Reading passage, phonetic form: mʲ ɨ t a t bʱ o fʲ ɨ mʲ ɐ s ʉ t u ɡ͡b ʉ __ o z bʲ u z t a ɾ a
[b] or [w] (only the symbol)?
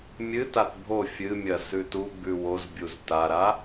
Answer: w